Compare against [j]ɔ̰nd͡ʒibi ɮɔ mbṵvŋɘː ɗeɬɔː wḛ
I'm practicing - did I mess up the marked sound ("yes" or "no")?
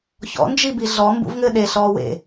yes